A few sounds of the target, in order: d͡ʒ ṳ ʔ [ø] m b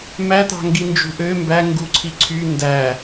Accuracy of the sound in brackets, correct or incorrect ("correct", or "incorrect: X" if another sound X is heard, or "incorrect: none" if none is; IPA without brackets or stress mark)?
correct